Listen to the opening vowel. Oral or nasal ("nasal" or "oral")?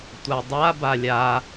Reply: oral